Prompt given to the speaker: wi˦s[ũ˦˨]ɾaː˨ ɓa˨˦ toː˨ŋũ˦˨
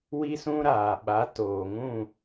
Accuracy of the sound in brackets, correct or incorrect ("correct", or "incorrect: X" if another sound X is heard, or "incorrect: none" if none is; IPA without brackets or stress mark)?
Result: incorrect: ũ˦